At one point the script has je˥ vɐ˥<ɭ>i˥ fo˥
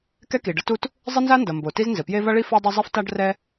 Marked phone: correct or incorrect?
correct